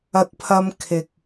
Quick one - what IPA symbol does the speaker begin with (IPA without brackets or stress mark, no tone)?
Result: ɐ